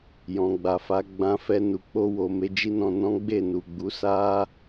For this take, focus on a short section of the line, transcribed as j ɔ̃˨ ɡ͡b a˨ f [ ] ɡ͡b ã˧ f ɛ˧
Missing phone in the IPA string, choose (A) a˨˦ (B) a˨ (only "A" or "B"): A